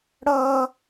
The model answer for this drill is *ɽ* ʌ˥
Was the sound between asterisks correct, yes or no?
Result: yes